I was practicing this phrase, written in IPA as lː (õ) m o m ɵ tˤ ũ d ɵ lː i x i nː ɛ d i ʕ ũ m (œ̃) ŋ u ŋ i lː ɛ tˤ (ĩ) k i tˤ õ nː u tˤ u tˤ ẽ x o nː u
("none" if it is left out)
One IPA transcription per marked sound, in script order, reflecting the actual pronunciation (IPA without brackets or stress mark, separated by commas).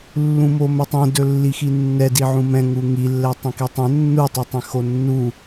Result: ũ, ɛ̃, ĩ